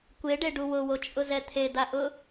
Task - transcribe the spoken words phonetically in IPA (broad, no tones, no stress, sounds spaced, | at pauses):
kʷ e ɖ e ɖ u w ʊ w o t͡ʃʼ ʊ z ɛ t̪ʰ e d̪ a ʔ ʊ